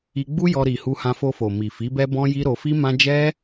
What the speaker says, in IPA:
i˧ɡ͡bu˦jɔ˧ ɾi˨ hu˧hã˧fo˧fo˨ mi˨fi˨˦bɛ˦ bɔ̃˦ji˦ ɾo˧fi˦ mã˦ d͡ʒɛ˦

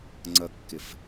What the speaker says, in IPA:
ŋ͡ǀʌkːɪf

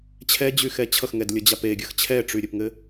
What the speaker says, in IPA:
t͡ɕʰɛd͡ʑyxɛ t͡ɕʰʌxŋɛdlʲʌd͡ʑap eɡʲəx t͡ɕʰɛʈ͡ʂyɾʲɘpŋɘ

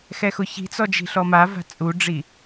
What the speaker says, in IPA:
xɛxʊçi̤t͡sɔ d͡ʒi̤ɬɔmava̤ t͡sʼuɖ͡ʐi

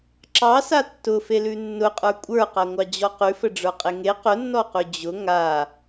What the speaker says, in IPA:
ǁɑsa tːʊfelʉ nːʊqʼə˞ kʷʼə˞qaŋʷɑd͡ʑɔ qʉfəɖ͡ʐə˞qʼe ŋe qʊnːɔqʉ d͡ʑʊ ŋa

